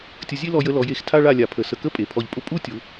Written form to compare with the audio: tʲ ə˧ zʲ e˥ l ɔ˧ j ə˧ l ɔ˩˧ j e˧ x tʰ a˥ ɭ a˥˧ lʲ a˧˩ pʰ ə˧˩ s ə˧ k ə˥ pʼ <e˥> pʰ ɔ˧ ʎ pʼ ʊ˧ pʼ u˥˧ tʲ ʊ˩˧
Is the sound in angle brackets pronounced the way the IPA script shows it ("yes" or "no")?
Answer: no